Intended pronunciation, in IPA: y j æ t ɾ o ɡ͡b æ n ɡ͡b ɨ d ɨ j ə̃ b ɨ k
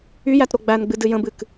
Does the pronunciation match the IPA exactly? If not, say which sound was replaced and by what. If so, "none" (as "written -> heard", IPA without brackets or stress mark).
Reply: none